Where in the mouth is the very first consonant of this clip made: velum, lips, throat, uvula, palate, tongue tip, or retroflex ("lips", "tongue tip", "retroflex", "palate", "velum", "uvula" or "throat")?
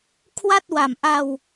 velum